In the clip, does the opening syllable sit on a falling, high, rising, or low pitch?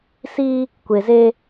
high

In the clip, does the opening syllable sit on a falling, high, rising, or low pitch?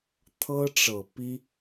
high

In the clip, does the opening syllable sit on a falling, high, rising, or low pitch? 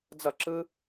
falling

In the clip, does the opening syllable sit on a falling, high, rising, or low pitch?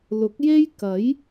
rising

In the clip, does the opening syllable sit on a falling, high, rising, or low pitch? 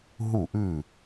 falling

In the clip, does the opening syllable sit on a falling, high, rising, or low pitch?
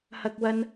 high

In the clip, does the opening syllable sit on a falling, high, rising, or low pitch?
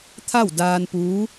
falling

